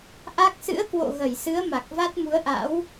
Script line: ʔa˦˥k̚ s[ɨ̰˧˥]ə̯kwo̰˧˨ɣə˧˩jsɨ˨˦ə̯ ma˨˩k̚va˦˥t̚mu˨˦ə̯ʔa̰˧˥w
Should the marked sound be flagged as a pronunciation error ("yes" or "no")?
no